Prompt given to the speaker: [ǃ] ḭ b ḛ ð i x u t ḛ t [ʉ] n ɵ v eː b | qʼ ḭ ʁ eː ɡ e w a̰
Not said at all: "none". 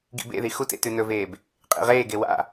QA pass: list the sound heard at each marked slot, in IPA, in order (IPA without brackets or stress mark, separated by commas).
ɡ, ʉ